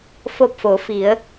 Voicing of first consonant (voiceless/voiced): voiceless